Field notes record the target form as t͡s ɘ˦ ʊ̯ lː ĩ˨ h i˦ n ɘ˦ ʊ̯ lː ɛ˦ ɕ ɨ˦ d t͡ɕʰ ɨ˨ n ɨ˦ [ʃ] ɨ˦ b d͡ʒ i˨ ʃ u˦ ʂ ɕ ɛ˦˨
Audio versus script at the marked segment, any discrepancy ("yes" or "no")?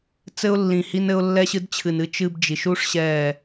yes